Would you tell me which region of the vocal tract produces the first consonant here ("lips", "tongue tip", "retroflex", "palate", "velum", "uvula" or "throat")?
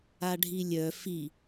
retroflex